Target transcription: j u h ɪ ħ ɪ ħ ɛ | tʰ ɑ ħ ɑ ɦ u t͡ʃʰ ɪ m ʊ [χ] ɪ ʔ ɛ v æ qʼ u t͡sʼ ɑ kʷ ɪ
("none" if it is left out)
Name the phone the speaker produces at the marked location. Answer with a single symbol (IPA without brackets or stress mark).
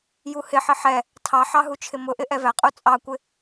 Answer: ʔ